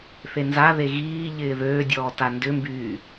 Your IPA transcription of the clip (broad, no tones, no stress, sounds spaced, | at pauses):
θ e n z a ð e ɣ iː ʎ ɪː ð øː dʲ ɔː t a n d ʏ m b yː